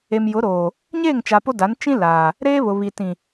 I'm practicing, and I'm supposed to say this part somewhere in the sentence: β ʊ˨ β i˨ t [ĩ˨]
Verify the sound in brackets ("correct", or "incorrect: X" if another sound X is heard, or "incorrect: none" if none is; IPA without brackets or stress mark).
correct